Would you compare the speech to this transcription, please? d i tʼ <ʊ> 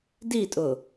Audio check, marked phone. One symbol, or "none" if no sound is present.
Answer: ʊ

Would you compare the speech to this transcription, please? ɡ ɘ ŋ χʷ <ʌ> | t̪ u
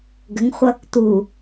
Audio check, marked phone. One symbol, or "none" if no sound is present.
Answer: ʌ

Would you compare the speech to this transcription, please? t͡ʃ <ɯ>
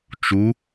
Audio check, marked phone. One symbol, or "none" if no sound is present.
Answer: u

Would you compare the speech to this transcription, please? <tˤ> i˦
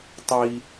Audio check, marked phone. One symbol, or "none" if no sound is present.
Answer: tˤ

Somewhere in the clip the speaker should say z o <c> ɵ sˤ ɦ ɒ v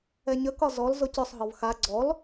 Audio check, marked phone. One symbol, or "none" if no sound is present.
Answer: c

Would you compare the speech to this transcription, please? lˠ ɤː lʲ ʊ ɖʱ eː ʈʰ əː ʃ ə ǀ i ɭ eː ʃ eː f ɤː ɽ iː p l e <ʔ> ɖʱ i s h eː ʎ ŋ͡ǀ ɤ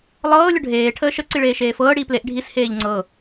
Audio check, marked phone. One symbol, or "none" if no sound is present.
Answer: ʔ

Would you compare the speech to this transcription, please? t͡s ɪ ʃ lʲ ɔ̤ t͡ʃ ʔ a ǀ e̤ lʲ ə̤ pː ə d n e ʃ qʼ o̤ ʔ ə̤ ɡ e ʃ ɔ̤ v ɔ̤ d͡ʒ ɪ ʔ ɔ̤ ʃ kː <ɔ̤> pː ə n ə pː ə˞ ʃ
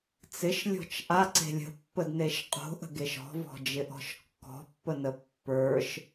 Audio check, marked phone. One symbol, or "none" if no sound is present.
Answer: ɔ̤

